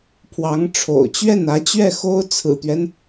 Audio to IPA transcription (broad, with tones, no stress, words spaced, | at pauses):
pʰwɑ˧˥ŋʈ͡ʂʰo̰˨˩ʊ̯ t͡ɕɥɛ˥˩nä˧˥t͡ɕɥɛ˥˩ xo˥ʊ̯ t͡sʰɹ̩˨˩t̪ɥɛ˦n